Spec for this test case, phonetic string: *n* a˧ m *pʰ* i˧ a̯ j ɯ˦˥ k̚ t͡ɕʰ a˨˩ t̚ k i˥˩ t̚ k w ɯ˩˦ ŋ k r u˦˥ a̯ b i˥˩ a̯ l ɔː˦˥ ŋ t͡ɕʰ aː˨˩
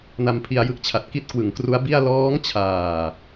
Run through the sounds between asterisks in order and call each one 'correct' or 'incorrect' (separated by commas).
correct, correct